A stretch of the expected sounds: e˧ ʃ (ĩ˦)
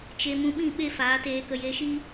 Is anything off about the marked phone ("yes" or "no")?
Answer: yes